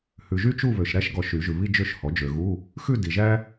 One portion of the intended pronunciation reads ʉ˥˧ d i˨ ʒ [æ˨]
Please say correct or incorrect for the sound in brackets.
incorrect